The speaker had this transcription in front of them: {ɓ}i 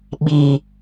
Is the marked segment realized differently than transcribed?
no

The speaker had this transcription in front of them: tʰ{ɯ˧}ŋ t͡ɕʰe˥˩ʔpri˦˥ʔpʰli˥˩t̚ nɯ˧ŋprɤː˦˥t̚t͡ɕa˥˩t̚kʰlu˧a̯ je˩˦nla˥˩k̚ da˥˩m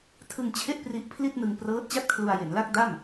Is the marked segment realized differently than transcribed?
no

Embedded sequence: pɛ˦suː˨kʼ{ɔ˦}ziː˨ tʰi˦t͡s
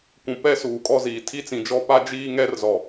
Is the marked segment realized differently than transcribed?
no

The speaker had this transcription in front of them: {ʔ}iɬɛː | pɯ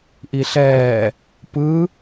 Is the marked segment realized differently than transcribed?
no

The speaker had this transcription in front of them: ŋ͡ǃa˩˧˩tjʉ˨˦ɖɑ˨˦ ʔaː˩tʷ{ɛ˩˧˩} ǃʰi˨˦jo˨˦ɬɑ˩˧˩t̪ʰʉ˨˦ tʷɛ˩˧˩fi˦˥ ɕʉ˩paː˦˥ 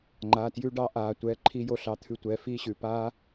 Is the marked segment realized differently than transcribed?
no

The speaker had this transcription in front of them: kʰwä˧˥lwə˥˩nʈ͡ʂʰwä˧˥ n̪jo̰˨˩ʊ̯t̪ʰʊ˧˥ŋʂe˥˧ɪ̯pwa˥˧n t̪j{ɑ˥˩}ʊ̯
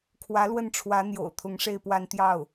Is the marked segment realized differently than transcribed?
no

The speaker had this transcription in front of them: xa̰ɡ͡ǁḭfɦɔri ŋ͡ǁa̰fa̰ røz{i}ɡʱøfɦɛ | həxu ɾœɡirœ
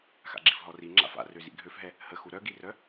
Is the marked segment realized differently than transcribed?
yes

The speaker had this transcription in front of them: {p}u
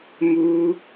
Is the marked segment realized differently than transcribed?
yes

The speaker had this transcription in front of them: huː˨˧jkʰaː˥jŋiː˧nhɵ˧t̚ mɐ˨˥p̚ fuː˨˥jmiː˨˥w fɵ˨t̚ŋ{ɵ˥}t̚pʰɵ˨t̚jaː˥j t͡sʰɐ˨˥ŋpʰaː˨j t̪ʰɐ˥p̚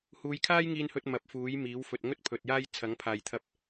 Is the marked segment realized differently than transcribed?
no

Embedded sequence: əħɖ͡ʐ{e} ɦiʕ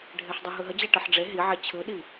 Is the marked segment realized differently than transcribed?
no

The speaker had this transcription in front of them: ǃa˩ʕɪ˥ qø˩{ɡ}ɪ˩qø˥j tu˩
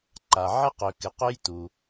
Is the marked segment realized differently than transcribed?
yes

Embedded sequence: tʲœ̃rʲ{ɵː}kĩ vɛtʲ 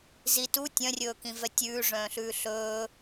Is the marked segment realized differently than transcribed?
no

